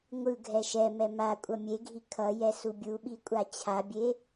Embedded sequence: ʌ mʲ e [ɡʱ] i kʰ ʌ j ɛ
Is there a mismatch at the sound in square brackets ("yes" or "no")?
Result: no